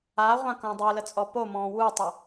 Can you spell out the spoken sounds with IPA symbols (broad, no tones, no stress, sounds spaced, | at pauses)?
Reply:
a ʁʷ ã k õ dˤ ø l ə t͡sʼ ɔ p o m ɔ̃ː w u tˤ ə